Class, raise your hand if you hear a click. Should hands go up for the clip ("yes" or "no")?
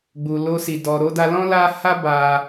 no